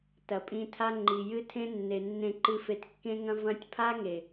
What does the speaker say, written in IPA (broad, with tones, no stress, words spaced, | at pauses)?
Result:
tɐ˨pʼĩ˧tʰa˦ ŋ͡ǃi˨jɨ˦ tʰẽ˦nːe˨nːẽ˧ǃɨ˧ fe˧tkːẽ˦ŋɐ̃˦ vɐ̃˦tʲ pʰa˦ŋe˨